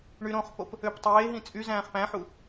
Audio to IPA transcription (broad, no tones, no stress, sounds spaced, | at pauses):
ɳ y ɾ õ χ p o p | ø p tˤ eː ɦ ĩ t͡sʼ y z æ̃ː χ p æ̃ ħ u